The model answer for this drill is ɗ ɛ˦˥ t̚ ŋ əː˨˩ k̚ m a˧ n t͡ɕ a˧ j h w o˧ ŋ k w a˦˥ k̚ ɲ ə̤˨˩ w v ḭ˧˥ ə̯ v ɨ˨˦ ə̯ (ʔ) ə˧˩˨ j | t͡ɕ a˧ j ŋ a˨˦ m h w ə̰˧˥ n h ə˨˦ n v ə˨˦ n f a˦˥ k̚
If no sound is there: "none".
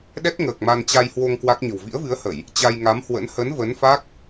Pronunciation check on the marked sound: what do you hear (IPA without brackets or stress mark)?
h